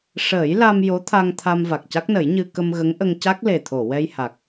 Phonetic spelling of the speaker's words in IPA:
ʂ əː˨˩˦ j l a˧ m j o˧˥ t̪ʰ a˧ ŋ t̪ʰ a˧ m v a˨˩ k̚ c a˦˥ k̚ n ə˨˩˦ j ɲ ɨ˧ k ə˧ m ɣ ə˧˥ ŋ ʔ ə˧ ŋ c a˦˥ k̚ l e˨˩ t̪ʰ o˨˩˨ w ɛ˧ j h a˨˩ k̚

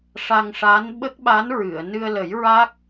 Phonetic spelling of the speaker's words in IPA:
ʂ a˧ ŋ ʂ aː˧˥ n ɓ ə˦˥ k̚ ɓ a˧˥ n ɹ ɨ˨˩˨ ə̯ n ɨ˧ ə̯ l ə˨˩˦ j ɹ a˦˥ k̚

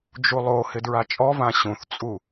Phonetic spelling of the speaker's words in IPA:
d͡ʒ u lˠ o h ɪ d ɹ a t͡ʃʼ ɔ v ã ɕ ũ θ t͡sʼ u

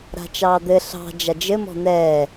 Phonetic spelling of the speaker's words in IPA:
ɾ a̤ t͡ʃ ɑː d̪ ɘ ɬ ɑ̤ d͡ʒ a d͡ʒ ɘ m ɔ̤ n̪ ɛː

